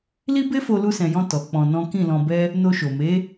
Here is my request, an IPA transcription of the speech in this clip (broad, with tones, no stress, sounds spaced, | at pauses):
l i˦ b e˦ f o˧ l u˧ s ɛ̃˨ j ɔ̃˧ t ɔ˨ k͡p ɔ̃˧ n ɔ̃˦ k ĩ˦˨ l ɔ̃˧ b ɛ˦ | n o˧ ʃ o˨ m e˨˦